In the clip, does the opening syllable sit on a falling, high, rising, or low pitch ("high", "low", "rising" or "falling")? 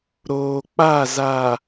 low